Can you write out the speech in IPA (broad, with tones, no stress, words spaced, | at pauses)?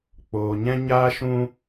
k͡poː˧ɲɛ̃˦ ɲaː˦ʃũ˦